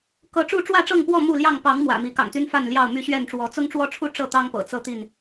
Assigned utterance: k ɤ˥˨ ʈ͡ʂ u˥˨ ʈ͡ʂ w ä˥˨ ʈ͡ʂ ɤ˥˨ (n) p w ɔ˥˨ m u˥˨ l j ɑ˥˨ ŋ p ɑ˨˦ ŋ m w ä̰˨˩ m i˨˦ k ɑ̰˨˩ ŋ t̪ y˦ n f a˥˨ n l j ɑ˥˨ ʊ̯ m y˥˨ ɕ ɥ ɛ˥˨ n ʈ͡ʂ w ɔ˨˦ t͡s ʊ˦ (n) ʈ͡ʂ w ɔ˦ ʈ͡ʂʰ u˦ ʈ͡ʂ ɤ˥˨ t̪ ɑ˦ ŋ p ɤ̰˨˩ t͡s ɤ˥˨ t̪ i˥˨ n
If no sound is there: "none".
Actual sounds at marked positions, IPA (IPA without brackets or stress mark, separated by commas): ŋ, ŋ